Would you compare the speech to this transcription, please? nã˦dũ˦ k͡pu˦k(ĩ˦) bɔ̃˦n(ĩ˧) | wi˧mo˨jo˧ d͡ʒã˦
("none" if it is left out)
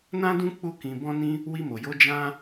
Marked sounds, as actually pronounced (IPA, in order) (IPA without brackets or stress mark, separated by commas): ĩ˧, ĩ˦